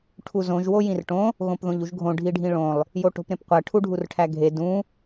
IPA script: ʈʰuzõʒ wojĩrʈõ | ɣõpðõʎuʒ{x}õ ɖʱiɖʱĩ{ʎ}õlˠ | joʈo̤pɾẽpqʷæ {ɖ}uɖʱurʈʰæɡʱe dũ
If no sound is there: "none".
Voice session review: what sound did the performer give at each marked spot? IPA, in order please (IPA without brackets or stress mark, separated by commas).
ɡʱ, ɭ, ʈʰ